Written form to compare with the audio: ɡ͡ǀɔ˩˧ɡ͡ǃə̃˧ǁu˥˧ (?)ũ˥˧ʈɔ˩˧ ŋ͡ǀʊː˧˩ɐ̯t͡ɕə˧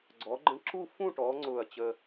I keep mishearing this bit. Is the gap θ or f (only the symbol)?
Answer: f